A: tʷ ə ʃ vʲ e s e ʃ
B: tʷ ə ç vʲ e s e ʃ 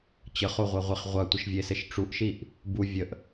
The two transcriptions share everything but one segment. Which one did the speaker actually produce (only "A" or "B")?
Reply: A